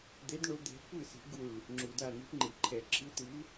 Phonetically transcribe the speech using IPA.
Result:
d̪ e˨˦ d ɳ o˨˦ d̪ ɛ̤˨˦ kʷ ɯ˥˩ s i̤˨˦ ɡ u˧˩ ɭ | ŋ͡ǁ u˩ d a˧˩ n̪ i̤˨˦ p ŋ͡ǃ i˩ ǃʰ ɛ˩ ǁʰ ɯ˨˦ t ɯ˨˦

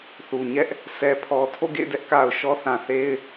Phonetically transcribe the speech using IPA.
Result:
θ u˨ ɲ ɛ˦ ʔ | s ɛ˨ pʰ ɔ˨ tʰ o̰˦˨ ɡ ḛ˦˨ ɪ̯ d ɛ˦ ʔ k a˨ ʊ̯ ʃ ɔ˦ θ ã˨ θ e˦ ɪ̯

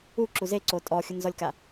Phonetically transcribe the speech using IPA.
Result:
u ǁ u z e ǀ o tʼ ɔ xʲ ʊ n z ɔ lʲ k a

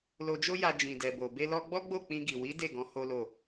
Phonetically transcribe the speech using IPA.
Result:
l o˧ d͡ʒ o˦ j a˧ d͡ʒ ĩ˨ d ɛ˨ b o˨ b e˧ l ɔ˧ ɡ͡b ɔ˦ ɡ͡b o˦˨ k͡p ĩ˧ ɡ i˨ w i˨˦ d e˦˨ ɡ ɔ̃˨˦ h o˦ l o˦˨

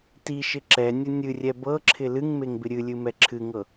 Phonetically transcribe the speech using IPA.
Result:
t i ʃ ɪ ǁ ɛ nʲ ə nʲ ɨ rʲ ɛ b ɤ ǁʰ ɪ l ɨ ŋ m e ŋ b ɪ ɾʲ ɨ lʲ ɨ m ɛ ǁʰ ɨ ŋ ɤ

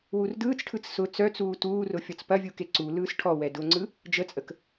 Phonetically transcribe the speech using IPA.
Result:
w u r d ɯː t͡s ʈʰ ɯ t͡s s ʊ t͡s œ t͡s uː t uː r ʊ fʲ ɔ t͡s p ɐ vʲ u k e ǀ u l ɯː s ʈʰ ɔ w ɛ d ʊ ŋ͡ǀ ɯ | d͡ʒ ə t͡sʼ ə k

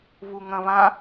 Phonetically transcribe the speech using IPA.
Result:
β u ŋ ɐ̃ β ã

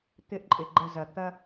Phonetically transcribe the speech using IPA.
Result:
t̪ ɪ˦ ʔ ǃʼ ɪ˨ ɡ͡ǃ ə˦˨ z ɐ˨ t̪ ɐ˦

